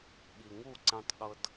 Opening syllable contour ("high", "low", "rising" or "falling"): low